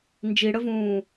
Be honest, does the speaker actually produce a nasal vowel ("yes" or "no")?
yes